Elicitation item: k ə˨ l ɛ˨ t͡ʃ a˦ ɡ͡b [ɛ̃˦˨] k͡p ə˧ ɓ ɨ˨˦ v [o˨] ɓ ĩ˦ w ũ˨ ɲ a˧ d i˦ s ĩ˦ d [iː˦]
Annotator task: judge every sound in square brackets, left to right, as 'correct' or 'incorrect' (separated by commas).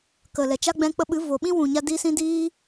incorrect, correct, correct